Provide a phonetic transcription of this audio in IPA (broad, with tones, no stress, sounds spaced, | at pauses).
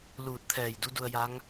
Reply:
l uː˧˩ t̚ t̪ʰ ɛː˧˩ j d u˧˥ d u˧ ə̯ j a˧˥ ŋ